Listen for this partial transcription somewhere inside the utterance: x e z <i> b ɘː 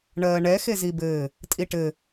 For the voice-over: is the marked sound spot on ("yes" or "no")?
yes